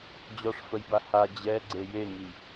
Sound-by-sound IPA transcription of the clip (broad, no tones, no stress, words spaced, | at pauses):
d͡ʑɔʂfəjba ha d͡ʑɛɡ͡ǀe jeŋi